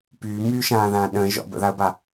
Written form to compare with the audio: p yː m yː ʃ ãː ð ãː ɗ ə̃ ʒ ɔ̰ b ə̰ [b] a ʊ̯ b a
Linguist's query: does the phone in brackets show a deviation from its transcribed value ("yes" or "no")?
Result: yes